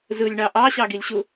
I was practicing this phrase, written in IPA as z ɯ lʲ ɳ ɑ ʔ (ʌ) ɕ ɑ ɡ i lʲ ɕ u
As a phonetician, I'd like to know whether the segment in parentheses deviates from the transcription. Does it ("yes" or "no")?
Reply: yes